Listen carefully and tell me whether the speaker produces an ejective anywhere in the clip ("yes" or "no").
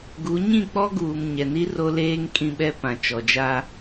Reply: yes